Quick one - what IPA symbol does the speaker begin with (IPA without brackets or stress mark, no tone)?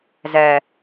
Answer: z